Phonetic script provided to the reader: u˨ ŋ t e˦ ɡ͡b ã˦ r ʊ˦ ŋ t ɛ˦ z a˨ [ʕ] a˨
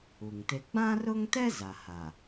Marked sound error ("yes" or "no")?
yes